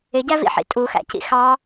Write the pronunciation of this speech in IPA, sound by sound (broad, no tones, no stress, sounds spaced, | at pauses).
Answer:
ɪ ɟ æ v ḭ ħ ḭ tʼ u x æ̰ c ḭ x ɑ